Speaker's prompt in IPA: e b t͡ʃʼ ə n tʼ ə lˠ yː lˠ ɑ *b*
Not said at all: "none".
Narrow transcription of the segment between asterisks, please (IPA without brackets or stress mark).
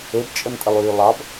b